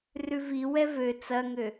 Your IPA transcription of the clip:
r ʉ v i w ɛ v ø t͡s ɐ ŋ ø

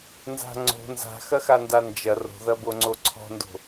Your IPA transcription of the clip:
n z a̤ ŋ͡ǀ o̤ n z a̤ x ɐ x a n d a n d͡ʒ ɐ r o̤ ð ɐ b o ŋ͡ǀ o ǀʰ ɔ̤ n d o̤

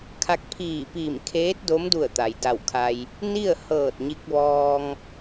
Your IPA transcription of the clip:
kʰ a˧ k̚ pʰ iː˧˩ p iː˧˩ m kʰ eː˧˥ t̚ d o˧˥ m d u˧˩ ə̯ t̪ a˩ j d a˧˩ w kʰ a˧ j | n i˥˨ ə̯ h ɤː˧˩ t̚ ɲ i˧ k̚ ʋ ɔː˧ ŋ

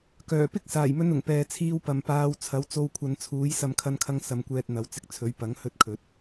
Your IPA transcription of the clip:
k œː˨˩ p ɪ˥ k̚ s aː˨˩ j m ɵ˧ n ʊ˨˩ ŋ p ɛː˨ t͡sʰ iː˧ w p ɐ˨ m p aː˧ w t͡sʰ ɐ˨˥ w t͡s o˧ w kʷʰ ɐ˨˧ n t͡sʰ uː˨˥ j s ɐ˨˧ m kʰ ɐ˧ n kʰ ɐ˧ ŋ s ɐ˨˧ m kʷ ɛː˧ t̚ n̪ ɐ˨˥ w t͡s ɪ˧ k̚ t͡sʰ ɵ˨˥ ɥ p ɐ˨˥ ŋ h ɵ˥ t̚ kʰ ɵ˨˥ t̚

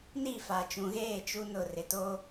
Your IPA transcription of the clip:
n i˦˨ f a˨ t͡ʃ ũ˨ ɣ eː˦˨ t͡ʃ u˦ n ʊ˦˨ r ɪ˨ t o˦

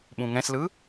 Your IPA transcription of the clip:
ɓ ũ ŋ ɛ̃ s l ɯ

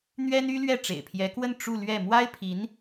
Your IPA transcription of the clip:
n̪ ɥ ɛ˥ n y˥ l ɥ ɛ˥˩ ʈ͡ʂ ḛ˨˩ ɪ̯ pʰ j ɛ˧˥ k w ə˥˧ n ʈ͡ʂ u˥˧ l ɥ ɛ˥˩ m w a˥ ɪ̯ pʰ i˧˥ n

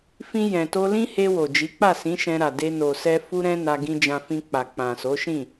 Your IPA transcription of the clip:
f ĩ˧ j ɛ̃˨ t o˧ l ĩ˦ h e˧ w o˨ d͡ʒ i˨˦ k͡p a˦˨ s ĩ˨˦ ʃ ɛ̃˧ ɾ a˨ d e˧ n o˨ s ɛ˧ f u˧ ɾ ɛ̃˧ n a˧ ɡ ĩ˧ d͡ʒ ã˧ f ĩ˧ k͡p a˨ k͡p ã˨ s o˨˦ ʃ ĩ˦˨

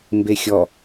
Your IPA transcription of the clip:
m b e xʲ ɔ

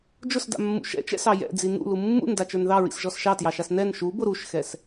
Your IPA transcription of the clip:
d͡ʒ ʊ s d a̰ mː ṵ ʃ ɛ̰ t͡ʃ ɛ̰ s ɑ j ɛ̰ d͡z i n ṵ l u mː ṵ n d a t͡ʃ ə˞ n ð ɑ ɹ ḭ s ʒ ɔ s ʃ ɑ t j ɑ ʃ a s n ɛ n ʃ u b ʊ ɾ u ʃ x ɛ s

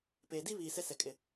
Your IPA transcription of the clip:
p eː˨ d i˦ β iː˨ s ɛ˦ s ɛ˨ kʼ ɪ˨

